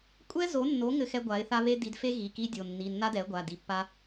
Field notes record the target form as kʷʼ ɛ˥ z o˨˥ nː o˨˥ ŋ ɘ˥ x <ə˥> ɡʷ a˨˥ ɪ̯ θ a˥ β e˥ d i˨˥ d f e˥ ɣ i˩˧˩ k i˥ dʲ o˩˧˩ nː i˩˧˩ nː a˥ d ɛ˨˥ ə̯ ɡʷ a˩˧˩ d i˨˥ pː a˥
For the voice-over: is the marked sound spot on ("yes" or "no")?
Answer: no